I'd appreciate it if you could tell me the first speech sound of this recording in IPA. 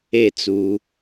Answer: e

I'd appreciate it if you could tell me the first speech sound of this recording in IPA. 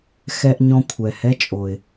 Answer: x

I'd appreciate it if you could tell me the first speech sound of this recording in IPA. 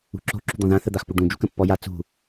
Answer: ṳ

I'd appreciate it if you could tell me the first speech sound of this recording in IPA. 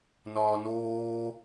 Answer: n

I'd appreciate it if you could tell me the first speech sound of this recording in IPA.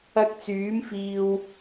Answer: ɐ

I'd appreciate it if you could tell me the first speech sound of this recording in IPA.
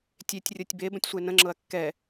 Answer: tʲ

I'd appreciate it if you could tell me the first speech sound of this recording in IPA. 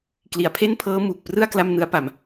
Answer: k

